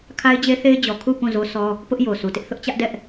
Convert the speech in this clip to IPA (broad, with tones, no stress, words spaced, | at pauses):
kʰa˦ɪ̯d͡ʑe˦ θe˦ɪ̯d͡ʑɔ˨ kʰu˦˨ pũ˦˨zo˦sʰɔ˦ | pʊ˦ʔjo˨su˨tɪ˦ʔ θʊ˦ʔt͡ɕä˦ʔdɛ˦ʔ